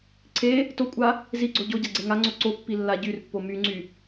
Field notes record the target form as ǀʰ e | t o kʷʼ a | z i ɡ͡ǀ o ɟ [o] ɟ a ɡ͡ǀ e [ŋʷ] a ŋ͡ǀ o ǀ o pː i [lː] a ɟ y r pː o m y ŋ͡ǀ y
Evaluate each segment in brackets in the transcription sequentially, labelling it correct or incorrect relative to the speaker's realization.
correct, incorrect: ŋ, correct

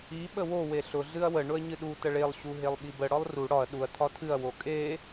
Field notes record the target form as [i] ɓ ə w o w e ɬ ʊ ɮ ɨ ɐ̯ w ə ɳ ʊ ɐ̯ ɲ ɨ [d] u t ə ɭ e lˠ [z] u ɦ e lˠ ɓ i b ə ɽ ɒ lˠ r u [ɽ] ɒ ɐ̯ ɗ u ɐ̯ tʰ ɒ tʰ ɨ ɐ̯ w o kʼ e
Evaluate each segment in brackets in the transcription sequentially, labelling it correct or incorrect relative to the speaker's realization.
correct, incorrect: ɗ, incorrect: ɕ, correct

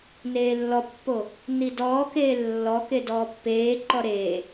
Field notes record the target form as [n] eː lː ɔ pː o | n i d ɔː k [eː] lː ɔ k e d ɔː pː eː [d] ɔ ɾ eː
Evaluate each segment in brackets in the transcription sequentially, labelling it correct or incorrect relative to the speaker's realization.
correct, correct, incorrect: ǃ

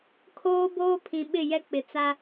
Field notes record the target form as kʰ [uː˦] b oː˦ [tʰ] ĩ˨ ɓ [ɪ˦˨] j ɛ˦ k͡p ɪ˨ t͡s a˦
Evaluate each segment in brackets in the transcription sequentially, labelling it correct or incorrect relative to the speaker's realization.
incorrect: oː˦, incorrect: pʰ, correct

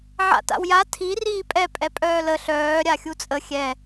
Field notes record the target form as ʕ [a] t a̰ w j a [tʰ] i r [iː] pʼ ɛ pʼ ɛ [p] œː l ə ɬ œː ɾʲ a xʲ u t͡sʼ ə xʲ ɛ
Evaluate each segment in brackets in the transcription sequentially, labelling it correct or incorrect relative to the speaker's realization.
incorrect: a̰, correct, correct, incorrect: pʼ

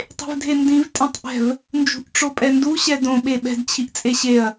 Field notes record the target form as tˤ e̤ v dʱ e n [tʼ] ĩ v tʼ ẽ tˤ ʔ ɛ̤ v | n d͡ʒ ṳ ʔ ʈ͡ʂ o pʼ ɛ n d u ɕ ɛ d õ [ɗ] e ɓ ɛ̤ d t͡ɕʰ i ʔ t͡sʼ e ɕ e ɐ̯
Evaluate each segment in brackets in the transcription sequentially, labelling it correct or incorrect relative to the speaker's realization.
incorrect: d, incorrect: ɓ

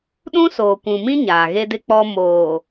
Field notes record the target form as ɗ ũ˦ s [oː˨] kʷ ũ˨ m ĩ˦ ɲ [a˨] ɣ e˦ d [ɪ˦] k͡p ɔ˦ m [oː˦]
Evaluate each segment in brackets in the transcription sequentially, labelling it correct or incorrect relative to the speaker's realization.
correct, incorrect: aː˨, correct, incorrect: oː˨

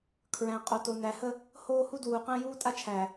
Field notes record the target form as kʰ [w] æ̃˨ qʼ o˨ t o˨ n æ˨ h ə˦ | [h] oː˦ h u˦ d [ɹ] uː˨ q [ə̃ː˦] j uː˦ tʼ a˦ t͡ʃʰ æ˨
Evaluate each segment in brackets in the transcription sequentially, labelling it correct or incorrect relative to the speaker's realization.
incorrect: ɹ, correct, incorrect: w, correct

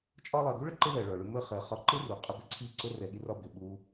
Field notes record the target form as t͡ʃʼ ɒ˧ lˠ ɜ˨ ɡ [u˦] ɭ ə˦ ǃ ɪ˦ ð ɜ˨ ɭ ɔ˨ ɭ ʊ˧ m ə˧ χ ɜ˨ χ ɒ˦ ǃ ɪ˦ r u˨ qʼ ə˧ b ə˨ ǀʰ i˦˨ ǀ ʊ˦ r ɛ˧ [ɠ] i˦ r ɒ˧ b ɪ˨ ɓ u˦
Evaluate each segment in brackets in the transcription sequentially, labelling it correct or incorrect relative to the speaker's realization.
correct, correct

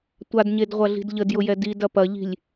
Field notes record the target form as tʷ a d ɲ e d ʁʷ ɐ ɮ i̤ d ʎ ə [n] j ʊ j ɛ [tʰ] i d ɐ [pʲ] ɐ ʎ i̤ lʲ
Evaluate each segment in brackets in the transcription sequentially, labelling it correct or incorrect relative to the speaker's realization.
incorrect: d, incorrect: d, incorrect: p

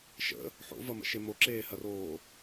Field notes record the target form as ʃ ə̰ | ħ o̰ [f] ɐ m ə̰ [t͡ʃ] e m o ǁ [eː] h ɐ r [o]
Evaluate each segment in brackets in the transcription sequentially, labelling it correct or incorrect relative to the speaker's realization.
incorrect: v, incorrect: ʃ, correct, incorrect: oː

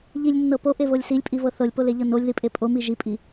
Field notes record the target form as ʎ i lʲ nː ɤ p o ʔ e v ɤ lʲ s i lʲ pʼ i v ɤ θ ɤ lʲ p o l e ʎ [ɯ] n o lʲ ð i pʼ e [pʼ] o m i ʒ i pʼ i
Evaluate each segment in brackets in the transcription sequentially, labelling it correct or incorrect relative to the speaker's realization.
incorrect: ɤ, correct

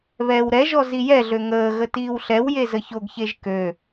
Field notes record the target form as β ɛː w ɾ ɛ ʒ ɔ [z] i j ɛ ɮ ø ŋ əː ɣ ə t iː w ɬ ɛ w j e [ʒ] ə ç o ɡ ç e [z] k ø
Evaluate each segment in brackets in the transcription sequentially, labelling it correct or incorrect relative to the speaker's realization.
correct, incorrect: z, incorrect: ʒ

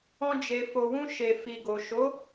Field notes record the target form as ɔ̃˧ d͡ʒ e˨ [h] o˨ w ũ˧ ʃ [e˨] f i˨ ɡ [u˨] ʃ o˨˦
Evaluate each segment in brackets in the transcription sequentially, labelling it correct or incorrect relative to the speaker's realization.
incorrect: f, correct, incorrect: o˨

